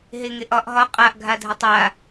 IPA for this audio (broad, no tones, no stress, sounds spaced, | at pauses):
ɦ e ŋ e ʔ ɒ ʔ ɦ ɒ qʼ a ʔ ɡʱ a dʱ ə tˤ a